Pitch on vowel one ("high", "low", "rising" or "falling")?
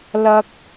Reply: low